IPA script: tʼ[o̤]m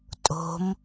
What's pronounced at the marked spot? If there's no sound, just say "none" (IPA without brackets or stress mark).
o̤